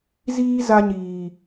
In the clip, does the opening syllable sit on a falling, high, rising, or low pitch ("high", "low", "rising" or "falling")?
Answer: high